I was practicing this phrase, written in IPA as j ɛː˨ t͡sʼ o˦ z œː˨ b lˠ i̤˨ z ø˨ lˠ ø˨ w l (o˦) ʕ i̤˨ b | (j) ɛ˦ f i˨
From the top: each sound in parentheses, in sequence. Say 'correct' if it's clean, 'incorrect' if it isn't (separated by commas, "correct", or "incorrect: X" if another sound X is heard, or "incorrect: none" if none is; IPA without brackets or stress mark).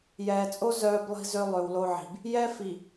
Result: correct, correct